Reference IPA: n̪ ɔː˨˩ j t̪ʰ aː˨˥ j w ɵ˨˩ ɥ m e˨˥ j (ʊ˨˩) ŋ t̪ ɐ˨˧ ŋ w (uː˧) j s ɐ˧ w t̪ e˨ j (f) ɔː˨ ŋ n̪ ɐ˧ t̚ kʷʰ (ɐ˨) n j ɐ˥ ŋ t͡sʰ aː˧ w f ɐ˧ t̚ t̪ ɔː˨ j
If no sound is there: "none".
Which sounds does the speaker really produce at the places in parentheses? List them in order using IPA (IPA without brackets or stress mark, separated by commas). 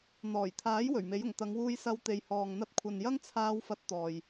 ʊ˨˩, uː˧, h, ɐ˨